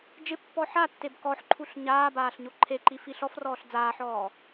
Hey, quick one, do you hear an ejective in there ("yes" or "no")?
no